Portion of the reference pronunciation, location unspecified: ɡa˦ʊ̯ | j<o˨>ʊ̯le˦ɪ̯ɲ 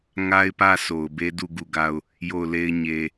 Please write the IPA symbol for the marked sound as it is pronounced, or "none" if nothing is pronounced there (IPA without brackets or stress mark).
o˦˨